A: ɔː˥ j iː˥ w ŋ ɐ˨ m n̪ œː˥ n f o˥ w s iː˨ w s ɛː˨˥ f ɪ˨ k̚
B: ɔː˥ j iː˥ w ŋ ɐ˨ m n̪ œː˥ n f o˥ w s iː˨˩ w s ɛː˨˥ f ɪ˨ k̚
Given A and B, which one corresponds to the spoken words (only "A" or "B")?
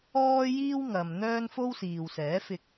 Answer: A